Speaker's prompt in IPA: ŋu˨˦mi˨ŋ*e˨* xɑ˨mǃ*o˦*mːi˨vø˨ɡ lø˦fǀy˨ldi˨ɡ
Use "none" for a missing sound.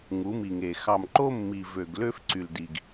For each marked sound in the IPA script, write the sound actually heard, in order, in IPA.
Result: e˨, o˦

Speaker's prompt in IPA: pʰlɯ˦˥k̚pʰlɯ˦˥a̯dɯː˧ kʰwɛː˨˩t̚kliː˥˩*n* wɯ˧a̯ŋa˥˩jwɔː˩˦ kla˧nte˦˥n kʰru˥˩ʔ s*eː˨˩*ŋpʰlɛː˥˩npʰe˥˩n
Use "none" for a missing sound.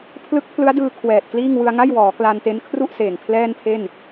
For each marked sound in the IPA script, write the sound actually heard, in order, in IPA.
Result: ŋ, eː˨˩

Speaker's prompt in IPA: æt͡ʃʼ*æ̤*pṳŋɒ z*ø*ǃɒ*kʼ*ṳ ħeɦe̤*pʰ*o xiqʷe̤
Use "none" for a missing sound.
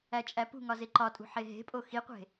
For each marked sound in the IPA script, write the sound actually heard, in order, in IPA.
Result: æ, e, tʼ, pʼ

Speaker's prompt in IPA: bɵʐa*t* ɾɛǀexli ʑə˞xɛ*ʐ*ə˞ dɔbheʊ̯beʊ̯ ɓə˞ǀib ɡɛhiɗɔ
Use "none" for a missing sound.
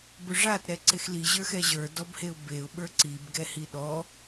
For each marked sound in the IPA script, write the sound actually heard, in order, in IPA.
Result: t, ʑ

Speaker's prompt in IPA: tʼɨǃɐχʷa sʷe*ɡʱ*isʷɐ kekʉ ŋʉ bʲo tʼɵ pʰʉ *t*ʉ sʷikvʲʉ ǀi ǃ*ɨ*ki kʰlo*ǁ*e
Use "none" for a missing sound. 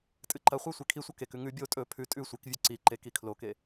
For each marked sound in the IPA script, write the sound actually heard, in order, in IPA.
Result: kʰ, tʼ, e, k

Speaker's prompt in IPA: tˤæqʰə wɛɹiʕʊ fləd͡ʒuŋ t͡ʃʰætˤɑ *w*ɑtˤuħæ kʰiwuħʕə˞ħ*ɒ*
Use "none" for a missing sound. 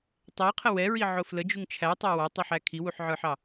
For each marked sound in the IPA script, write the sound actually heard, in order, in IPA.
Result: w, ɑ

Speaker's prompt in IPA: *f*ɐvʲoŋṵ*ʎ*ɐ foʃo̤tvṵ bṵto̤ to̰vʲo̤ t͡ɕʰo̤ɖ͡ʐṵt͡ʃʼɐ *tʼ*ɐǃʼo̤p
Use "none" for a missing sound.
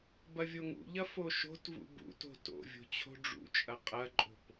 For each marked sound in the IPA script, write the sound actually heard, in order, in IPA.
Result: b, ʎ, qʼ

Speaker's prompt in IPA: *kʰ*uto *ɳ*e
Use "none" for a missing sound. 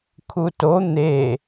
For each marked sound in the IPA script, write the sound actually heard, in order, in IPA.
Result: kʰ, n̪

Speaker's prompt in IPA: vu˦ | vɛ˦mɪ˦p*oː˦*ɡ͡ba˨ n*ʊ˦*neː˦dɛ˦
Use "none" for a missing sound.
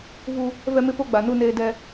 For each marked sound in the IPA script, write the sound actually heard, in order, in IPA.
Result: o˦, u˦

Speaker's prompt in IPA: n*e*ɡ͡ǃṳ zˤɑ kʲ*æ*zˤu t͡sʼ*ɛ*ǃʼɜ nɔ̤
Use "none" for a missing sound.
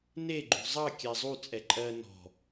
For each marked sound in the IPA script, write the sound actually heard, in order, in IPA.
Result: e, æ, ɛ

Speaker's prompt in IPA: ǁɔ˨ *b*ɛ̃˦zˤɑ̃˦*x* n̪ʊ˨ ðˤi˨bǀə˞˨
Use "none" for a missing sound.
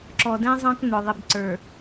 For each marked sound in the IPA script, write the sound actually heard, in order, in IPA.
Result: d, k

